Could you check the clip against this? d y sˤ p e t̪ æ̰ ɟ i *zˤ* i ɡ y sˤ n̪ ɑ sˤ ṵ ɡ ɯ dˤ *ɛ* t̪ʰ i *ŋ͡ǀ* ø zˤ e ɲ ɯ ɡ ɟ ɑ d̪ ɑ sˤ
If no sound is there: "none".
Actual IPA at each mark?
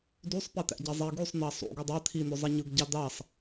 zˤ, æ, n̪

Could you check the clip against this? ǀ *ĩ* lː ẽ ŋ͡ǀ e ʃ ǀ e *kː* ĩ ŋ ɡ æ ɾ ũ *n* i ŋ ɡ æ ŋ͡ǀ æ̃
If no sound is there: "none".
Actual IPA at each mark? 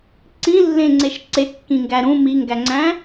ĩ, kː, m

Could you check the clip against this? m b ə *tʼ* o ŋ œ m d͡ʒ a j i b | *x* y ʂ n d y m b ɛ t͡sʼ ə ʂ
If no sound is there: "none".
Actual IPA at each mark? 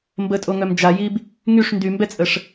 tʼ, ŋ

